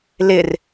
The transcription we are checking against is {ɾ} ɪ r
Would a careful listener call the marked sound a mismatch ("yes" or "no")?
yes